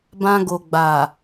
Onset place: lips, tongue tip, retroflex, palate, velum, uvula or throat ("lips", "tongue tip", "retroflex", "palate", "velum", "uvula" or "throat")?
lips